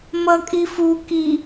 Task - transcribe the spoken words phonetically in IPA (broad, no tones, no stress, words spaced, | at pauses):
mʌkʼifu ki